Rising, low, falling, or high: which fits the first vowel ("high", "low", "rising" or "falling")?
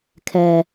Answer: low